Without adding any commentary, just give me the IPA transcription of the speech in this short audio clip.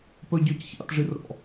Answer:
pœɟœc çɑ̰tʐirɾɔ̰

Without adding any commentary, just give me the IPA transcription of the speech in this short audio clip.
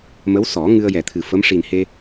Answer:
mə˧˥wsɔ˨˩˦ ŋɨ˧ə̯jɛ˨˩t̪ʰɨ˨˩fə˧˥m ʂi˨˩nhe˧

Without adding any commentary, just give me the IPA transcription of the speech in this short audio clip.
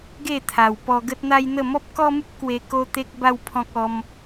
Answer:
ɡe˥˧t̪ʰa˨˩w pɔ˧ ɡə˦t̚n̪a˦jn̪ə˥˧ mɔ˦p̚kɔ˦mu˦p̚ kwe˧ ko˦t̪e˦k̚ ba˦w pʰɔ̃˦k̚ɔ˧m

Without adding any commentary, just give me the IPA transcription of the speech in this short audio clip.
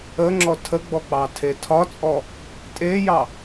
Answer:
əŋ͡ǁɔ tʰəɡ͡bɔ k͡pɑtʰetʰɒt͡sʼɔ | tʼejɑ

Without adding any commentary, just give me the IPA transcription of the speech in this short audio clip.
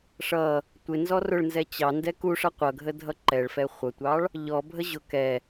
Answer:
ʂʌ | tʷɪ nzɔrʊɭnzɛ t͡ɕɑndɛ kuʂʌ qʷʌɡʱə dʱʌǃɛɭfɛ χʷʌtʷɑɭ | ʎɔbʱə ʑʊ kɛ

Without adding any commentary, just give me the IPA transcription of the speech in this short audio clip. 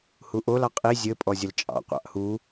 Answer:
huʔol ɑqʼi zʲɘ pʼɔzʲəlt͡ʃʼɑ̰ qʷɑ̰ʔhu

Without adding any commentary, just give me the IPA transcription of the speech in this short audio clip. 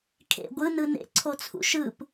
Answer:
kʰḛ ɡʷɯ nɯnḛ ǀʰot͡sʰṵʃɯp

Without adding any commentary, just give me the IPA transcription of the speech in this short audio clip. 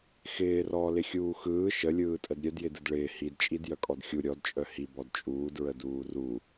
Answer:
xɪːrɔː lɪxʲuːxɯː ʃəlʲɯːtʼəd ɾʲœdjɪdɯd ɭɪː hidt͡ʃʼid jœkʼɔdxʲu ɾʲɔdt͡ʃʼœ hi bɔdt͡ʃʼuːd ɹəduːru

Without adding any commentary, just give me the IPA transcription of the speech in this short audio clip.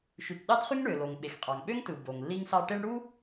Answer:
ʃy˩tɗɑ˥dχy˥ŋ ɳø˩lo˩ŋɓe˩xqʼɑ˩ŋ ɓø˥ŋtɯ˩ bo˩ŋlːi˥ŋsɑ˥ ʈe˥ɳ ɽu˥

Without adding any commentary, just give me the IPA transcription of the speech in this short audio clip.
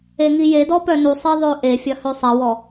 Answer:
eŋijedɔ pœnusˤe ðˤøʔefʲɐ høsˤɛwɔ

